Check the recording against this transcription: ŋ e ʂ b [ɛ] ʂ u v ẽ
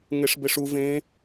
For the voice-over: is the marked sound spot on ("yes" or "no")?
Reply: no